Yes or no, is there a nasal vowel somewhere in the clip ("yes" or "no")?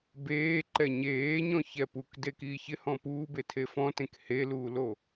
yes